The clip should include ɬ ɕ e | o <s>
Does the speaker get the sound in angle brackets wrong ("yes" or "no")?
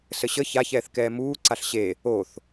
yes